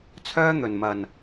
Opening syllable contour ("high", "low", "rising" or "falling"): high